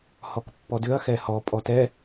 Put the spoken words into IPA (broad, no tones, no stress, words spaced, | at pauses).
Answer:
hɔkpːɔdʏɐ̯ xɛhɔ pʼɔtɛ